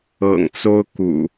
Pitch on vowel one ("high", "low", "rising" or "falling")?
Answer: low